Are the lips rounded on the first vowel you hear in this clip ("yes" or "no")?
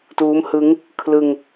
yes